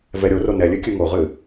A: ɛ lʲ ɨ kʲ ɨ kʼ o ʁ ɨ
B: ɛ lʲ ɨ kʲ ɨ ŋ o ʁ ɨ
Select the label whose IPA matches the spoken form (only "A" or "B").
B